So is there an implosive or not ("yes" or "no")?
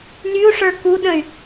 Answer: yes